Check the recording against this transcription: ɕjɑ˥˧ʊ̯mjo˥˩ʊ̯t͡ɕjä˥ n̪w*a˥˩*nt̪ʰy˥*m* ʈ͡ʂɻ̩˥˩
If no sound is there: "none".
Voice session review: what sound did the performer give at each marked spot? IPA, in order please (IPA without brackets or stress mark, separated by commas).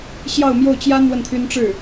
ə˥˩, n